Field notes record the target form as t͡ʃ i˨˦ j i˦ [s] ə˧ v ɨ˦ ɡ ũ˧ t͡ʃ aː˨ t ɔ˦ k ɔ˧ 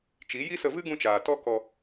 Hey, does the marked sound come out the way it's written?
yes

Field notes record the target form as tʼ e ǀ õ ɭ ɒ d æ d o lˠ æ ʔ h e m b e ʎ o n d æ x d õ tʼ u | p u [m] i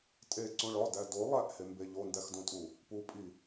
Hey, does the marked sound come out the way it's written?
no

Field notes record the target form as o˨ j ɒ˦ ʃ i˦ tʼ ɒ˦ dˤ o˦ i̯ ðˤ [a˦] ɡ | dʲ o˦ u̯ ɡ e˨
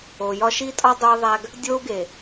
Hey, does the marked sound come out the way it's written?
no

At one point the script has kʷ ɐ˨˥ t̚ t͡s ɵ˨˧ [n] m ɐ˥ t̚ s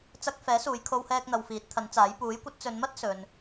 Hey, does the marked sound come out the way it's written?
yes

